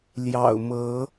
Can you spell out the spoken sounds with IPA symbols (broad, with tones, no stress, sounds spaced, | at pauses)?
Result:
l j ɑ̰˨˩ ʊ̯ m ɤ˨˦